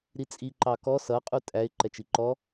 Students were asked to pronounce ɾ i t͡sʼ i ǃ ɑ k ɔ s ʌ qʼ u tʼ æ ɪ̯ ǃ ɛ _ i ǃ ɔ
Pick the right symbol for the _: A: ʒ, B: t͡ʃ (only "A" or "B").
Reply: B